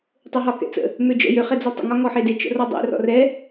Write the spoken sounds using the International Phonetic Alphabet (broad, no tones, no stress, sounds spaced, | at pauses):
tˤ ø ɦ ɒ k ɛ̰ t͡s ə̰ | m ø d͡ʒ ə̰ j ø χ ɛ d͡z ɔ tˤ ə̰ ŋ ɒ ŋ ɔ ħ e d e t͡ʃ ə̰ r ɔ dˤ ḛ r ɔ̰ r ɛ